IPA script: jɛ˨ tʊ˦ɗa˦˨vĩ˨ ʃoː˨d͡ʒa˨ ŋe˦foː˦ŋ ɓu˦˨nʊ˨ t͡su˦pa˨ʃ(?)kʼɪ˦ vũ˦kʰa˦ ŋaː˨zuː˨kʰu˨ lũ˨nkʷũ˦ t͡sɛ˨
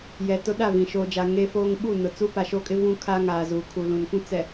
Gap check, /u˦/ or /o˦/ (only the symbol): o˦